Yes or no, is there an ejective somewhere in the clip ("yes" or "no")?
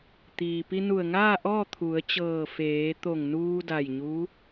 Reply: no